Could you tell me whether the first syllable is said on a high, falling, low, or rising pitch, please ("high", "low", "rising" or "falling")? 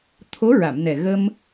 rising